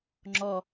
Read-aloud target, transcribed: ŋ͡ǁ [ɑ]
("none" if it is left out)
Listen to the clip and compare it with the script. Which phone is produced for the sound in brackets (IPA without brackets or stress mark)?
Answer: ɔ